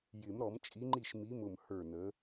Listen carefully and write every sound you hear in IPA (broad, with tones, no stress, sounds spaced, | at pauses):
j ɪ˨˩˦ m ɾ ɔ˨˩˦ m t͡ʃʼ i˨˥ ŋ͡ǃ i˥˩ ʃ m i˨˥ m ʊ˧˩ m h ə˞˥˩ n ə˨˥